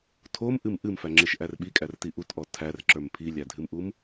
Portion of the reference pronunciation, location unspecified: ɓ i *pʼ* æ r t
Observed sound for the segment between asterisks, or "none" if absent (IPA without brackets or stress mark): kʼ